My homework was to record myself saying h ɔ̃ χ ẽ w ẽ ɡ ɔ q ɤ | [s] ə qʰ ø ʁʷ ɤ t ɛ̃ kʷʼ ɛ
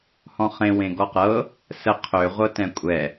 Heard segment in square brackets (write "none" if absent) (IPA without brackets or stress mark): s